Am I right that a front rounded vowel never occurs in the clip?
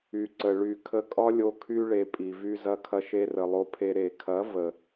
no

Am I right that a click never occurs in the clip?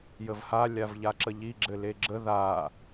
no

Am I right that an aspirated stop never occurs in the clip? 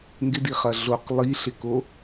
yes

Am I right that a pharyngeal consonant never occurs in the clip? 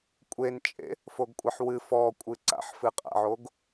no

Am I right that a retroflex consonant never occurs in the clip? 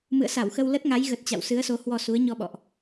yes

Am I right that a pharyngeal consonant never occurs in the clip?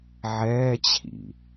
no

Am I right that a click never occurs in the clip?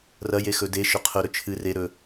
yes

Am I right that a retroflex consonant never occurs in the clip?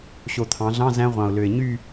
yes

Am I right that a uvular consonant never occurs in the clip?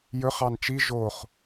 no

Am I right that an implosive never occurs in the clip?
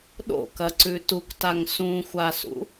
no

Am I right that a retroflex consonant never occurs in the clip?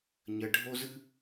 no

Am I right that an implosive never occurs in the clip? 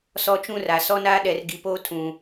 no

